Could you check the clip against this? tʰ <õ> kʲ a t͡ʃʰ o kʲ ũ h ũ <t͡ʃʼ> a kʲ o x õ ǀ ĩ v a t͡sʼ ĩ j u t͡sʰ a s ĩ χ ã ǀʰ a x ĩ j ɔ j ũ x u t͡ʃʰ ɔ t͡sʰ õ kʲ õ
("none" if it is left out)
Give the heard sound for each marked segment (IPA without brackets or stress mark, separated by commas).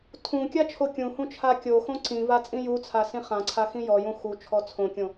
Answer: ũ, t͡ʃʰ